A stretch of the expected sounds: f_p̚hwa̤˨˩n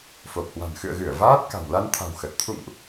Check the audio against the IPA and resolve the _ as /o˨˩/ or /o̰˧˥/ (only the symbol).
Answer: o˨˩